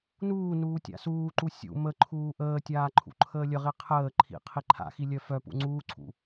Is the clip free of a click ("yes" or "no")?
no